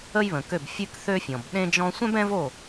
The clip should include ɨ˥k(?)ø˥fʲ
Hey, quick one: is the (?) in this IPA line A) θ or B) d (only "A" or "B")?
A